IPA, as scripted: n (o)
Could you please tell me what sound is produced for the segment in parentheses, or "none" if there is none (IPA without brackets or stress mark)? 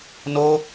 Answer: o